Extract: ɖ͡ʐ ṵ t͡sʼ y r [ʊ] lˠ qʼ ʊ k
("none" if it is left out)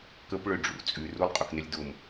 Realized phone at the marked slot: u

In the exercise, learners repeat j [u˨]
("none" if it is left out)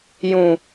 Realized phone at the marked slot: ũ˨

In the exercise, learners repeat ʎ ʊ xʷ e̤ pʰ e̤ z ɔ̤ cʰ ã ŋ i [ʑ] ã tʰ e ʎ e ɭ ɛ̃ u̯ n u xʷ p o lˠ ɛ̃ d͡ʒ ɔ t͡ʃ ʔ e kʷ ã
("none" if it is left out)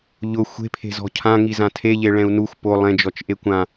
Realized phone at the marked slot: z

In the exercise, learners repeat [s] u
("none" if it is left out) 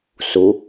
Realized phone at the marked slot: s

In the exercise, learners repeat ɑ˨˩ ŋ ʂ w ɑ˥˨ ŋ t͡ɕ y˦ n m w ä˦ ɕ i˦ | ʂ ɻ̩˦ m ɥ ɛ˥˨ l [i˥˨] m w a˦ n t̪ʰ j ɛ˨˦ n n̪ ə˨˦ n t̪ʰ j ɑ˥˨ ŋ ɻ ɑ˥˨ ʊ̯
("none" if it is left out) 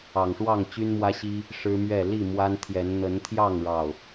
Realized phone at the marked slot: i˥˨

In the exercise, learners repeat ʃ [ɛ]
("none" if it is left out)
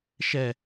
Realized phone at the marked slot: ɛ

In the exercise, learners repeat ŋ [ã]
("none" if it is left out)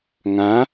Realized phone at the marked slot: ã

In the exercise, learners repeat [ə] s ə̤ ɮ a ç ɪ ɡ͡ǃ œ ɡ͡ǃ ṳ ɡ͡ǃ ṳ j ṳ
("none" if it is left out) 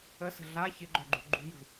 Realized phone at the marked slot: ə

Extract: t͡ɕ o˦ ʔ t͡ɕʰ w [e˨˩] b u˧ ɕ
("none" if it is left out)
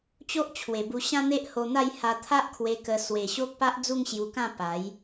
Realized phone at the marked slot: e˨˩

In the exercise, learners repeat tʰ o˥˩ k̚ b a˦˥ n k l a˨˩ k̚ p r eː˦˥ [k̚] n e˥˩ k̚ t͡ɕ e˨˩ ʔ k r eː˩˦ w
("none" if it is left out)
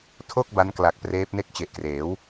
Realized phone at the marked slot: p̚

